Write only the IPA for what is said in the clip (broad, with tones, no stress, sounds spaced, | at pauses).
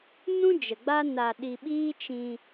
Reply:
n ũ˦ d͡ʒ ə˨ ɡ͡b a˦ n a˧ ɗ i˧ ɓ iː˦ t͡ʃ ĩ˧